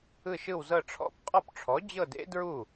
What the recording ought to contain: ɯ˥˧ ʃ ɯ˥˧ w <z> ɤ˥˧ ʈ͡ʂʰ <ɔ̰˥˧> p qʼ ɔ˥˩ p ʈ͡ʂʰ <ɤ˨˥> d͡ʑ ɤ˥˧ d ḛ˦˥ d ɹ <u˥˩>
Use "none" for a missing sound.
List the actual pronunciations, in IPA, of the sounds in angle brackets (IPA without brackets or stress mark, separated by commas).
z, ɔ̰˥˧, ɔ˨˥, u˥˩